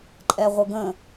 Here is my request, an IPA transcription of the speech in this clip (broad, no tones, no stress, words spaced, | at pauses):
ǃʼɛʁʷəɡə̃